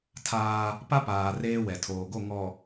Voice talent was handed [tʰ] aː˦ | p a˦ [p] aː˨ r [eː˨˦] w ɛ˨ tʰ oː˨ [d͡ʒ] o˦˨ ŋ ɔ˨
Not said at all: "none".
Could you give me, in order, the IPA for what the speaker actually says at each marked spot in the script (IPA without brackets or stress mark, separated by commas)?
tʰ, p, eː˦, ɡ